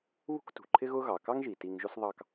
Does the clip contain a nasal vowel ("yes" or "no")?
no